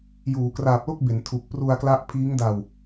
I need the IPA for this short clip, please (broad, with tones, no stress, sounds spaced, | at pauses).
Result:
j uː˩˦ k r aː˨˩ p̚ l o˥˩ k̚ b e˩˦ n tʰ u˨˩ k̚ p r u˧ a̯ k l a˦˥ ʔ pʰ iː˦˥ ŋ d a˧ w